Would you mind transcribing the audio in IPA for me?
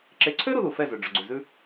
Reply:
ǁ e˨ ǀʰ ø˦ ɾ u˦ ð u˨ f ɛ˦˨ z ø˨ ɖ͡ʐ ɵ˨ ɡ͡ǀ ʉ˨ z ʉ˦

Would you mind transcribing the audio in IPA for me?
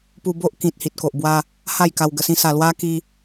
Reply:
p u˧ b o˦ ʔ k ĩ˨ t̚ h i˨ t̚ k o˨ ʔ b w a˦ | h a˥˧ j k a˧ w ɡ ə˧ s ĩ˦ s a˧ l w a˦ k i˦

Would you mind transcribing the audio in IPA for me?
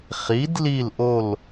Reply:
χ i˨˥ d l i˦˨ l ʔ o˦˨ l

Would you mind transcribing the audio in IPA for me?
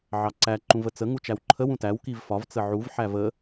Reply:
ʕ ɑ ǀ æ ǃ ũ v ə t͡s ə ŋ u t͡ʃ æ w ǃʰ ə w ũ t æ w k i v f ɒ v t͡s ə ʕ u v ħ æ v ə

